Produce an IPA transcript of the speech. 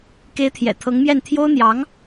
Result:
ke˧˥ɪ̯t̪ʰjɛ̰˨˩ t̪ʰɤ˧˥ŋmjɛ˥˩n t̪ʰjo˥ʊ̯n̪jɑ˧˥ŋ

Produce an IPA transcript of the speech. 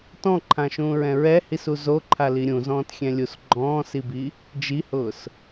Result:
tɔ̃ǃʰãʃũːɹɛ̃ ɹɛhisu zoǃʰali ɾʲũzɔ̃ːtxʲɛ̃lʲus ɡ͡ǃɔ̃ːsibi | d͡ʒihʊːs

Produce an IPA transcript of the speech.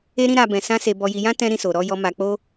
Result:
e˦ɾĩ˦ ɾa˧ bɛ̃˧sã˦se˧ bɔ˧ji˧jã˦ tɛ̃˦ ɾĩ˦so˧ ɾɔ˧jɔ˧ ma˧k͡po˦

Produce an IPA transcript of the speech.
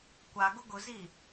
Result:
kʷaɡʊ ɡʊzi

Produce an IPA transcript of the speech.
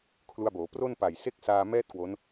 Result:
kʰlu˧a̯boː˩˦ pro˥˩n pa˨˩jse˥˩k̚saː˧ mɛː˥˩t̚ kwo˦˥n

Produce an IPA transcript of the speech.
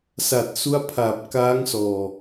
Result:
sa˨˩t̚su˦˥a̯pʰaː˨˩p̚ kaː˦˥ŋsɔː˨˩

